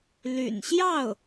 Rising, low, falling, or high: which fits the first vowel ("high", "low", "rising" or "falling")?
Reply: low